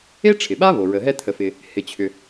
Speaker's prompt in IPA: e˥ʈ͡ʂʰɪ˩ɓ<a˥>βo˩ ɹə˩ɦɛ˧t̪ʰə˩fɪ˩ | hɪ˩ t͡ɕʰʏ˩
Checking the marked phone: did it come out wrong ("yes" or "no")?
no